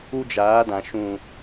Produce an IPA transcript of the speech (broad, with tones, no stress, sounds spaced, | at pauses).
u˦ d͡ʒ aː˨˦ d ã˨ ʃ ũ˨